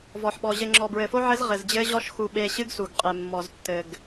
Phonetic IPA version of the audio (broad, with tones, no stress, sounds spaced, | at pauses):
v ɔ˨ ħ ɓ ɔ˨ ʑ ɘ˨ ŋ͡ǁ ɔ˨ b ɹ ɘ˨ f o˦ ʕ ɘ˦ z ʁ ɘ˨ z d͡ʑ ɘ˦ ʑ ɔ˦ ʃ x u˨ ɓ e˨ ɕ ɨ˦ ɡ s u˨ ɡ qʼ e˨ mː ɔ˨ z tː ɘ˨ ɡ